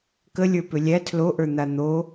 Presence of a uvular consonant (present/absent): absent